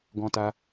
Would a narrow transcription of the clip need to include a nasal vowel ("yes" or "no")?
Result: yes